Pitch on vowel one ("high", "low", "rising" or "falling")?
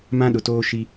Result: high